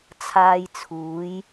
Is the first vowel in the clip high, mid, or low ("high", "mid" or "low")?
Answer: low